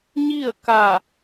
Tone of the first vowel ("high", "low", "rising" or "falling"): falling